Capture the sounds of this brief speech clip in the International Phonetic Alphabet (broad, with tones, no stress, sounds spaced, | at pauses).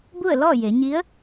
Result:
b u˥˨ ə̯ l ɔː˥˨ j e˩˧ ɲ i˧˥ ə̯